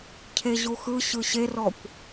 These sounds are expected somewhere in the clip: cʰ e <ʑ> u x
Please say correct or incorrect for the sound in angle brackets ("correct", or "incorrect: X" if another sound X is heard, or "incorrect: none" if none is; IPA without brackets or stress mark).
correct